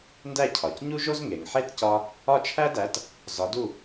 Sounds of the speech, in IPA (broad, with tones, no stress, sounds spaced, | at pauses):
n d æ˥˩ cʰ ɒ˩ c ɲ u˥ ʒ o˥ z ŋ e˩ ŋ ħ e˥˩ t c ɒ˧ | ɒ˥˩ t͡ʃʰ æ˥ d æ˩˥ t | z ɒ˩˥ d u˥˩